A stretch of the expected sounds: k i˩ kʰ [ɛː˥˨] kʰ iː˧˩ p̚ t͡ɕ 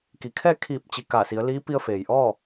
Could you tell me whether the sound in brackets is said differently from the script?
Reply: no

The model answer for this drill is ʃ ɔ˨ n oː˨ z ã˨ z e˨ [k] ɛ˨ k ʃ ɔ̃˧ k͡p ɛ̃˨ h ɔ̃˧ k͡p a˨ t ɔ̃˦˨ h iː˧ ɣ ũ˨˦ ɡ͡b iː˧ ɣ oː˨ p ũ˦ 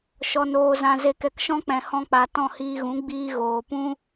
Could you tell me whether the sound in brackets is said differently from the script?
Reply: no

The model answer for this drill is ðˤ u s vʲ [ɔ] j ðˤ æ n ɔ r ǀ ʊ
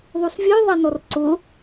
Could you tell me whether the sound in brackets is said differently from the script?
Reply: yes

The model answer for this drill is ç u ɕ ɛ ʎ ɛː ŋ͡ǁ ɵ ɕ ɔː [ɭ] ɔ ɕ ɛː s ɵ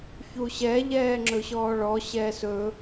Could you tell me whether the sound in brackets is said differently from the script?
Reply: no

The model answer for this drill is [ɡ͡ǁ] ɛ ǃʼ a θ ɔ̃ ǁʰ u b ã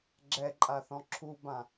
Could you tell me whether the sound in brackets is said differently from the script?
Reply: no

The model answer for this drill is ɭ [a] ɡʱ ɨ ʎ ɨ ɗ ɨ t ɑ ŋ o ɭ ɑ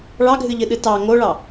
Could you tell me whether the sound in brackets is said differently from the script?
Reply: yes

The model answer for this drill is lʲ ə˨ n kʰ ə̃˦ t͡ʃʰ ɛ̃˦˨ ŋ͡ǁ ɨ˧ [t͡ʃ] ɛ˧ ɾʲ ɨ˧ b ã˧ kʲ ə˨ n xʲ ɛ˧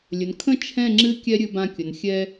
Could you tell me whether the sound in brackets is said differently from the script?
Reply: yes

